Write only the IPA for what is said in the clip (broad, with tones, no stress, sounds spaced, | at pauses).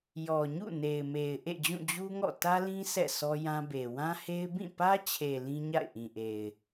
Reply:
j ɔ˨ ɲ ṵ˦˨ n e˨ ɪ̯ m e˨ ɪ̯ ʔ ḛ˦˨ d͡ʑ ũ˦˨ d͡ʑ u˦ ŋ ɔ̰˦˨ t ä˦ l ĩ˦ sʰ ɛ̰˦˨ sʰ ɔ˦ j ã˦ b e˨ w ã˦ h e˦ ɪ̯ b ĩ˦˨ p ä˦ t͡ɕʰ e˨ l ĩ˦ ɲ a̰˦˨ ɪ̯ ʔ ĩ˨ ʔ e˨ ɪ̯